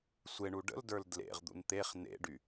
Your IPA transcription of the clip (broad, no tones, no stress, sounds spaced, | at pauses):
sʷ e ɳ u ɖ ə̰ l d ə˞ l d l ḛ ʁ d̪ ṵ n t̪ e χ n ḛ ɖ y